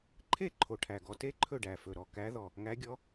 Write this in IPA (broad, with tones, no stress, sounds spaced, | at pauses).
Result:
ǃʰ e˥˩ ǃʰ o˨˩ ʈʰ æ˨˩ ɡ ɔ˨˩ t e˥˩ ǃʰ ɵ˥˩ ɖ æ˨˩ f ɵ˨˩ ɾ ɔ˨˩ k æ˧˥ ð ɔ˨˩ | ŋ æ˧˥ ɡʲ ɔ˧˥